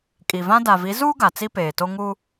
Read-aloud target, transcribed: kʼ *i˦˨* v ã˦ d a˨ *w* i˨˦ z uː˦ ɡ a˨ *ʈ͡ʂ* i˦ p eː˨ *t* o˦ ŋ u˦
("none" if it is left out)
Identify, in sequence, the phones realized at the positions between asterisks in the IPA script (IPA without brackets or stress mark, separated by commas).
i˨, v, t͡s, t